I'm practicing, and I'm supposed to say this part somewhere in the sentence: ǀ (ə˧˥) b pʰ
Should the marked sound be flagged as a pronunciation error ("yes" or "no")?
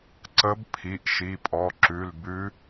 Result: no